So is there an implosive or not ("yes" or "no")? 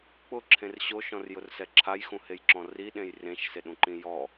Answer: yes